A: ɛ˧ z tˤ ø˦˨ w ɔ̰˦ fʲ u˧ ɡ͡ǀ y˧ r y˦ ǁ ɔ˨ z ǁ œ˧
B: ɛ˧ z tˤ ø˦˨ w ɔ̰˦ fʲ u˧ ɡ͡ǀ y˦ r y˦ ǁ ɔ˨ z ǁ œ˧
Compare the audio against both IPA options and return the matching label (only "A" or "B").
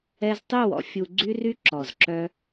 B